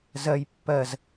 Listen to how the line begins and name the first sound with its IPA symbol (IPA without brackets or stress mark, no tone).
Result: z